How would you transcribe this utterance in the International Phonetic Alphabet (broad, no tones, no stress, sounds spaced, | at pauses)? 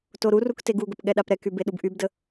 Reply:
t o ɾ u r u k t e ɡ u ɡ ə p ɠ ɛ ɗ a p ɾ ɛ k y b e ɗ u b ʔ y b d ə